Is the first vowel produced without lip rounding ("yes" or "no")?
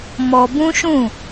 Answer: no